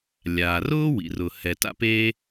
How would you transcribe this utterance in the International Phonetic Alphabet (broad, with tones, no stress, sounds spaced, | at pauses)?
lʲ aː˩ r ʊː˥ w ḭ˩ r ʊ˩ h ɛ˩ t a̰˥ p eː˥